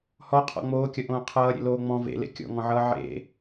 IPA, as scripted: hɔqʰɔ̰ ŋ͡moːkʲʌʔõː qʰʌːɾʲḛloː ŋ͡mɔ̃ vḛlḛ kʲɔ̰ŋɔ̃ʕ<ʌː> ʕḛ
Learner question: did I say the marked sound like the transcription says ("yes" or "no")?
yes